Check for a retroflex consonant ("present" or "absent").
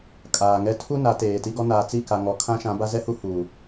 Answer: absent